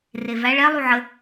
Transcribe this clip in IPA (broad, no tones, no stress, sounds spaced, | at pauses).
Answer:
r e v æ ɭ ɛ lˠ u ʕ ə